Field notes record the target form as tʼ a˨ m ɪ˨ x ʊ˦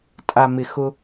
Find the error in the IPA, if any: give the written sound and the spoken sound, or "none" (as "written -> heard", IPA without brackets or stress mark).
none